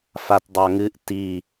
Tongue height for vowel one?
low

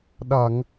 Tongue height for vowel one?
low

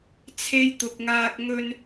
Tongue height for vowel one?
mid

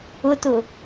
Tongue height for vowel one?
high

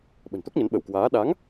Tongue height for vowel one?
mid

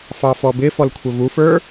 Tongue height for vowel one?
low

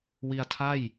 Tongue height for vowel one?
high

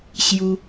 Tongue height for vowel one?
high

